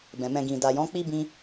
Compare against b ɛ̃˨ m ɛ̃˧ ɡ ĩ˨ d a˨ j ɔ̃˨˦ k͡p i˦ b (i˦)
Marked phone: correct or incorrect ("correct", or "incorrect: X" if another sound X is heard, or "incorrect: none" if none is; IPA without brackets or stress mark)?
incorrect: ĩ˦